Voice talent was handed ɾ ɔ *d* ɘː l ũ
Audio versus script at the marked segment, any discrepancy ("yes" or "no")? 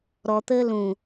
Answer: yes